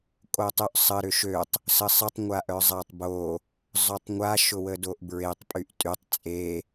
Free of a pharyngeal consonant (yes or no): yes